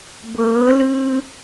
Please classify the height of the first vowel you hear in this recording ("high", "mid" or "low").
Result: mid